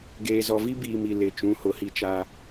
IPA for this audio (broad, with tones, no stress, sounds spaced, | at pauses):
ɡ eː˨ z ɔ˨ v i˦ b iː˨ m i˨ l ɪ˨ t͡ʃ ũ˨˦ h ʊ˨ h i˦ t͡ʃ a˦